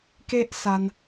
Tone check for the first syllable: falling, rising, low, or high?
high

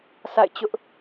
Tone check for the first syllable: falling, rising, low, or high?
falling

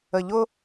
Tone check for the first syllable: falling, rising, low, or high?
low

